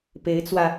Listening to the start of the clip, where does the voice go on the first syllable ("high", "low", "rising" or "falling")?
rising